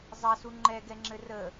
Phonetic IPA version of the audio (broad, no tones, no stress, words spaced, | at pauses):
zˤɐsu ŋ͡ǃɛɡɛŋ͡ǁɘ rə